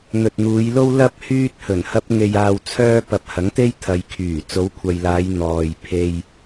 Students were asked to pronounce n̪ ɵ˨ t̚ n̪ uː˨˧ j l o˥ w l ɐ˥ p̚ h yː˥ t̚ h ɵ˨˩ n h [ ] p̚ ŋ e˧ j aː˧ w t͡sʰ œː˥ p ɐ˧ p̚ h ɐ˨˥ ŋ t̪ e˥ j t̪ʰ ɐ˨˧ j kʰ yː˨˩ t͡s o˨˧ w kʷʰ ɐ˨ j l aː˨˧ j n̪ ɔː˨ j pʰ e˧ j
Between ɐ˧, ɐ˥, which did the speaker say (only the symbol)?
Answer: ɐ˥